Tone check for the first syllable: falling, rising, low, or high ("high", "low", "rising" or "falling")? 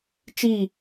falling